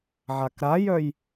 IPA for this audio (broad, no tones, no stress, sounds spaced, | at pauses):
ʕ a k ɾ a j œ j